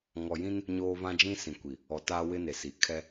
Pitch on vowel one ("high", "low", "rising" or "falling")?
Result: low